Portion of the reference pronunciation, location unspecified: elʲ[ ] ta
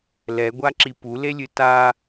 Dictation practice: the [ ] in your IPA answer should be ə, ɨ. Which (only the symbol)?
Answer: ɨ